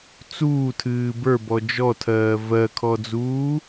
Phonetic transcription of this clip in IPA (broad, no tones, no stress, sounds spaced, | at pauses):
t͡s uː tʰ ɨː b ə˞ b ɔ d͡ʒ ɔ tʰ ɜː v ɜ kʰ ɔ d͡z uː